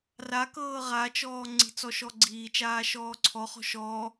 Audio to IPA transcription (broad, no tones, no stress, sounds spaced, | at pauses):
r a k ɤː ʁ a t͡ʃ ɔː ŋ͡ǀ i̤ t͡s ɔ ʃ ɔ ɡ͡ǀ iː t͡ʃ aː ʃ ɔː ǀʰ ɔ χ ɔ̤ ʃ ɔː